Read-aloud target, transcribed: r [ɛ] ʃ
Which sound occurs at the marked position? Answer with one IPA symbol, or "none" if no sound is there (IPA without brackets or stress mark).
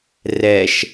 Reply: ɛ